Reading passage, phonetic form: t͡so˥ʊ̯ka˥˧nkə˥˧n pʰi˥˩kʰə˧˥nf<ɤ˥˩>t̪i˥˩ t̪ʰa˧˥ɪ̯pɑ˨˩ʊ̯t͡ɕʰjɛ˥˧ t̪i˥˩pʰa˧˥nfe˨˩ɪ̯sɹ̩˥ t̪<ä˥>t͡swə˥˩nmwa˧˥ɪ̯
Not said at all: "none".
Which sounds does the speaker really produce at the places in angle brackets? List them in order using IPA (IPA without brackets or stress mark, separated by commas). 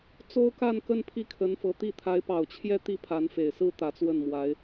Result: ɤ˧˥, ä˧˥